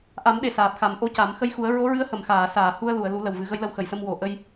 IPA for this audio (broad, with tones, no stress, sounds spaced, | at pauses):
ʔ a˨˩˦ m ɗ e˨˩ s aː˨˩ p̚ x a˨˩˦ m ʔ o˧˥ c a˨˩˦ m x ə˧ j x u˨˩˦ ə̯ ɹ o˧˥ ɹ ɨ˧˥ ə̯ h ə˨˩˨ m x aː˨˩˨ s aː˨˩˨ h u˧ ə̯ l u˨˩˨ ə̯ l u˨˩˦ l ə˨˩ w v ɨ˨˩˦ ɣ ə˧˥ j l ə˧ w x ə˨˩˨ j s ə˧ m w o˨˩˨ ʔ ə˧ j